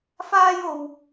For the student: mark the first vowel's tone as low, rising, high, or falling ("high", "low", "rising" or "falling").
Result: high